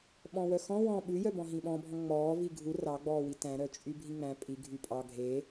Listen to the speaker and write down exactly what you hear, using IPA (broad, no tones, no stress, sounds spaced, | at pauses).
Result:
ɓ ɔ̃ w œ x ɔ̃ w ɔ̃ ɓ ʉ j œ b ɔ̃ ɦ ĩ ɓ ɔ̃ bʱ ɔ̃ ŋ͡m ɔː v i ɡʱ u r ɑ ɡ͡b ɔː w i t æ̃ ɾ œ t͡ʃʼ y bʱ ĩ ŋ͡m æ̃ pʼ i ɡʱ y pʼ ɑ ɡʱ e